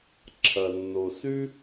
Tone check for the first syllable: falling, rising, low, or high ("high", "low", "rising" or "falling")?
low